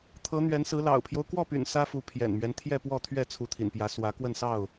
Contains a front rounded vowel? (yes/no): yes